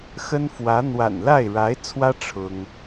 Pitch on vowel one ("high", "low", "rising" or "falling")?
high